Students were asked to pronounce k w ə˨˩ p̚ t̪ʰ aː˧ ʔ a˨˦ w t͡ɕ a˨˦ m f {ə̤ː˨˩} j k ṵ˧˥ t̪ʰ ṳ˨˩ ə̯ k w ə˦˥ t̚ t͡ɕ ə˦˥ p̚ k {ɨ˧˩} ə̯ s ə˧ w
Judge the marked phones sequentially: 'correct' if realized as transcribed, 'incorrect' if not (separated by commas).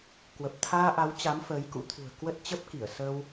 incorrect, incorrect